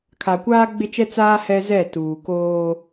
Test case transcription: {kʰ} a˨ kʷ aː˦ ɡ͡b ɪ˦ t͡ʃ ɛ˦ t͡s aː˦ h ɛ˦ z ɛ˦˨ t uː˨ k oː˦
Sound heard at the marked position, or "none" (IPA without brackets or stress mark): kʰ